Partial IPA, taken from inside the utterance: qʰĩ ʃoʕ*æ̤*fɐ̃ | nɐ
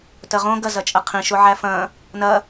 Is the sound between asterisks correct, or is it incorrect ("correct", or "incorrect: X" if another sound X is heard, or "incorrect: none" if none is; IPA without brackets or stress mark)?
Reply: incorrect: æ